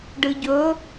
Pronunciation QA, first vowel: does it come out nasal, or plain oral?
oral